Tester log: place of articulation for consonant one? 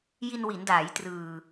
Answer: palatal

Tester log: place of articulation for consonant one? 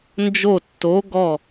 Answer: alveolar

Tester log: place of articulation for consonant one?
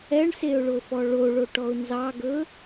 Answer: retroflex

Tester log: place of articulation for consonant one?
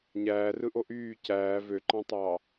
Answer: palatal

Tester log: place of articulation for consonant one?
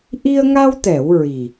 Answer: glottal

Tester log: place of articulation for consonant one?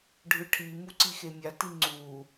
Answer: retroflex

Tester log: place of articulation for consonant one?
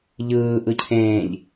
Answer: palatal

